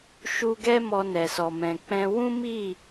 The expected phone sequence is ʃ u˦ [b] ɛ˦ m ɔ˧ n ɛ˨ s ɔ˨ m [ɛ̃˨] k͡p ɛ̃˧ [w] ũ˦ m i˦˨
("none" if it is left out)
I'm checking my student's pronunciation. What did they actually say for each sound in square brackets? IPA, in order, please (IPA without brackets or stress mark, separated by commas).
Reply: ɡ, ɛ̃˨, w